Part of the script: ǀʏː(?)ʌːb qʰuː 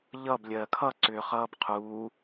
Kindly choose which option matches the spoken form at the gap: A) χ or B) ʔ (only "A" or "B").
A